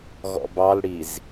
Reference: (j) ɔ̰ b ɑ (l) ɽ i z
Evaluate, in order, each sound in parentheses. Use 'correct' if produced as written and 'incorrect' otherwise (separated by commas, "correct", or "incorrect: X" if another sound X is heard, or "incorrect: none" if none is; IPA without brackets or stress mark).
incorrect: ɣ, correct